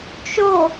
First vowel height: mid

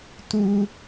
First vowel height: high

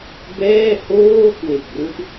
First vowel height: mid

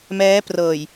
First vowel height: mid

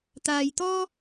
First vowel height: low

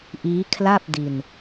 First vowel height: high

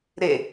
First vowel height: mid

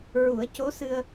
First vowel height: high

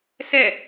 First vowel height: mid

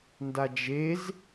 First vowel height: low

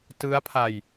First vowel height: high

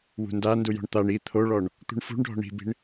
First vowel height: high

